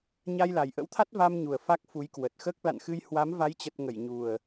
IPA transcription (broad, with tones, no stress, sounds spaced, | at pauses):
ɲ a˧ j l a˨˩ j ʔ ə̰˧˥ w t̪ʰ a˦˥ t̚ v a˧ m ɲ u˨˩ ə̯ f a˦˥ k̚ f u˨˦ j k w ə˨˩ t̚ x əː˦˥ k̚ l a̰˧˨ n x ɨ˧ j h w a˨˦ m v a˨˦ j t͡ɕ ə˨˩ t̚ ŋ ə˧˩ j ɲ u˨˩ ə̯